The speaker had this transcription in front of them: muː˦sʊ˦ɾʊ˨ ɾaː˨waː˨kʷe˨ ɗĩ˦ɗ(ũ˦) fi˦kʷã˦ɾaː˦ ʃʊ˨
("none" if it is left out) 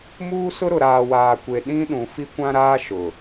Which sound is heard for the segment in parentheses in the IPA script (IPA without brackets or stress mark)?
ũ˨